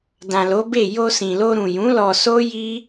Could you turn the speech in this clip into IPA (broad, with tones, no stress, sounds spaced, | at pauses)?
d ã˨ l o˨˦ b e˦˨ j o˧ s ĩ˨ l o˧ ɾ ũ˨ j ũ˨˦ l ɔ˧ s o˦ j i˦